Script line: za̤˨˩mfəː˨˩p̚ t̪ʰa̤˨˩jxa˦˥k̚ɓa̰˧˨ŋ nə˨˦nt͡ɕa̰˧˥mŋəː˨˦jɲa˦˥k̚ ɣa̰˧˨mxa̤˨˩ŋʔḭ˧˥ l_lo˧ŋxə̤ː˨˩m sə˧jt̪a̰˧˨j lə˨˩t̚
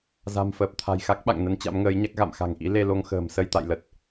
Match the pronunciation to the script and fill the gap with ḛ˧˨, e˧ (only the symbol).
e˧